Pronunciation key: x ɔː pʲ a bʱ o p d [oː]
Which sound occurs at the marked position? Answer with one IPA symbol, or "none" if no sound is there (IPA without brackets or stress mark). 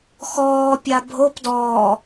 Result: ɔː